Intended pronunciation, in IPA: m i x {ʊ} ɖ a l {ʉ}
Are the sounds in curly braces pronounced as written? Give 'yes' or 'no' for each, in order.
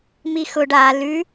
yes, yes

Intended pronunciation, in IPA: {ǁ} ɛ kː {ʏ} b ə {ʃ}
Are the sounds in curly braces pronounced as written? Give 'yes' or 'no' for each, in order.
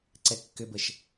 no, yes, yes

